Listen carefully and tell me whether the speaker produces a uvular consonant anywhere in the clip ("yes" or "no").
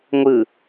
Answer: no